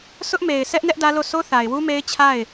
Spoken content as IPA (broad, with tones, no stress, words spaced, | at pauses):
sʊ˦ʔme˨ɪ̯ sʰɛ˦ʔnɛ˦ʔ dä˦lo˦˨ so˦θa˨ɪ̯wu˦me˦ɪ̯ t͡ɕʰa˦˨ɪ̯